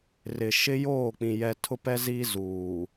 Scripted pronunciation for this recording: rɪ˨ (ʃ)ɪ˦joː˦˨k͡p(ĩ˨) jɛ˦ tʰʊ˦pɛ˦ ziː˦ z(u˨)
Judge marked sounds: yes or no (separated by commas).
yes, yes, no